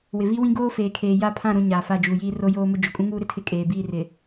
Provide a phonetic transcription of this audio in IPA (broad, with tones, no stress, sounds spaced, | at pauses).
w ɪ˨ v i˦ w ĩ˦ ɡ oː˦ f eː˨ kʰ eː˨ j a˦˨ pʰ ã˦˨ ɾ ũ˨ ɲ aː˨ f a˦˨ d͡ʒ uː˨ j iː˦ r o˦ j oː˦ m ʊ˦ d͡ʒ o˨ kʼ ũ˦ ŋ uː˦ ɾ ɪ˦ tʰ ɪ˦˨ kʼ eː˨ b iː˦˨ r ɪ˨